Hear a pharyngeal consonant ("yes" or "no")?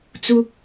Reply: no